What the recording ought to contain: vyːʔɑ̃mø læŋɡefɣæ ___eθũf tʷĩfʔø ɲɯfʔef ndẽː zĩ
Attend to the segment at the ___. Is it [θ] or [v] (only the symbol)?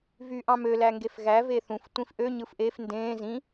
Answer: v